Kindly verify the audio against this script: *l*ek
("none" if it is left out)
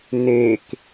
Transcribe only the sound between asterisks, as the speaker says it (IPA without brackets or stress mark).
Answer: n